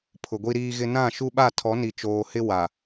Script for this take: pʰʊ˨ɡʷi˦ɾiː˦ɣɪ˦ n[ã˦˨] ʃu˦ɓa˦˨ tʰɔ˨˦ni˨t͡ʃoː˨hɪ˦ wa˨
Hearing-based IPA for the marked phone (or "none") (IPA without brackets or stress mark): ã˦˨